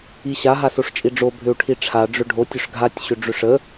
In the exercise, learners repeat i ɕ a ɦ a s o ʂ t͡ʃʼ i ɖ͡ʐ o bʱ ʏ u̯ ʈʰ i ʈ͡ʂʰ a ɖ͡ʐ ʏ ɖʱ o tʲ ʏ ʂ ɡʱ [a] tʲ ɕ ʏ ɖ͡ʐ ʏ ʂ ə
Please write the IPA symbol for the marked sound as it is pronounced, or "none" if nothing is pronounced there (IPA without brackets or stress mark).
a